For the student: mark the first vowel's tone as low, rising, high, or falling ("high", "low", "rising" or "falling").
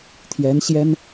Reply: rising